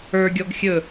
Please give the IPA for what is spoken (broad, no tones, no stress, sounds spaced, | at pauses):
ə˞ ɡʲ ɔ ɡ xʲ ɵ